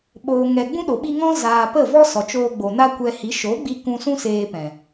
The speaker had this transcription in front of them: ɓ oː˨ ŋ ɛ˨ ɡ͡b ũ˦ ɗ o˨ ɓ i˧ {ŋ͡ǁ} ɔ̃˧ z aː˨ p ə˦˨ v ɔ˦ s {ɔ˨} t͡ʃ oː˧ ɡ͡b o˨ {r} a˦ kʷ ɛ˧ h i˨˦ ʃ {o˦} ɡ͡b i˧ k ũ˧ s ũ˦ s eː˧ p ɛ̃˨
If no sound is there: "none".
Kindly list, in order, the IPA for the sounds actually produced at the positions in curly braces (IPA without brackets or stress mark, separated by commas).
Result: ŋ, ɔ˨, n, o˨˦